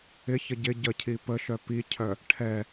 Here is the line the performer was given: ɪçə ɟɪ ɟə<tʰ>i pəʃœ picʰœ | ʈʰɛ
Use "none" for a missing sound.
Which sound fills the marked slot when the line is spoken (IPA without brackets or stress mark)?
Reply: cʰ